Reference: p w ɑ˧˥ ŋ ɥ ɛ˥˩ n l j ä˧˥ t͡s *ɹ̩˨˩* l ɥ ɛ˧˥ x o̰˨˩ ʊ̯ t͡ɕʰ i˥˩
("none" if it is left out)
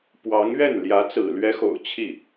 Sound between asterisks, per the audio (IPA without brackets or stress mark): ɹ̩˨˩